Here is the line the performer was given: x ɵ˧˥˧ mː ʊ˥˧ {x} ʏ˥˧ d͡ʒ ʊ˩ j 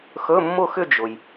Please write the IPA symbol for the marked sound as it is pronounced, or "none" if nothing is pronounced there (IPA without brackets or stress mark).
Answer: x